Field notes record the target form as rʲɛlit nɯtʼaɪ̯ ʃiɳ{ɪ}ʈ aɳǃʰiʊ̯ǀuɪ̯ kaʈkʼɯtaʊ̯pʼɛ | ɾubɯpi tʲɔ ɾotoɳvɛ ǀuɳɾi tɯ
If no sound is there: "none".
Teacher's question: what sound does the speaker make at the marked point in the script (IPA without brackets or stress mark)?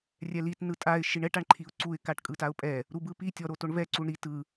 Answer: ɛ